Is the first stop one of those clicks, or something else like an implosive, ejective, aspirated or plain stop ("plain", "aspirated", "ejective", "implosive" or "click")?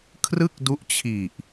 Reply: aspirated